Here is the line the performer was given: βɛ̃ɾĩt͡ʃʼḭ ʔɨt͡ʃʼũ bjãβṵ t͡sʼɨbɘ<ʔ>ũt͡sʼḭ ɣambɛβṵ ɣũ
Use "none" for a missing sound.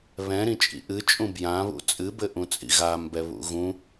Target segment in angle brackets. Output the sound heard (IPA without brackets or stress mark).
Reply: ʔ